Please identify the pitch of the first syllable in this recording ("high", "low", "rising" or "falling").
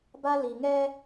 high